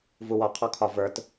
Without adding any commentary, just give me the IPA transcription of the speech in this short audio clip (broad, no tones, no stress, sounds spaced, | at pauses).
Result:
v u w ɒ qʰ ɔ kʰ ɒ v ə˞ t